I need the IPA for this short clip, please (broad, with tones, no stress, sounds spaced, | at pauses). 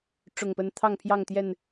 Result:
ʈ͡ʂ ʊ˨˩ ŋ p ə˨˦ n t̪ʰ ɑ˥˨ ŋ pʰ j ɑ˥˨ ŋ t̪ j ɛ˥˨ n